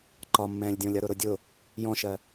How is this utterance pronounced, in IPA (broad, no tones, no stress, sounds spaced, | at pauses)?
ǃ ɒ mː ɛ̃ː lʲ dʲ ɔ̃ lʲ ʌ ɾ ʊ ɾ ʊ dʲ ʊ | j ɔ̃ ʃ ɜ